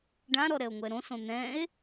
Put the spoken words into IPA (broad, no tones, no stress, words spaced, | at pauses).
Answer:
ɖãɾɔɾɛo̯ŋʷɛ ɾõsõ n̪ɛ̃e̯